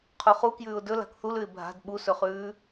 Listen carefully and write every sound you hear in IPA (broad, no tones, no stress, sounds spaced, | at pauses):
qʰ u χ u k j ʉː ʊ̯ d ɵ l a̤ k θ u l ʉ ɪ̯ bʱ a̤ d ɓ u s ɵ χ ʉː